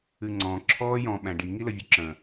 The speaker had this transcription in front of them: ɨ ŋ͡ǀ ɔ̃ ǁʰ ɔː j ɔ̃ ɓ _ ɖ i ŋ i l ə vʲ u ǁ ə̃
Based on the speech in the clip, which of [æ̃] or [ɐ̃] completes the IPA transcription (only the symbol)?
æ̃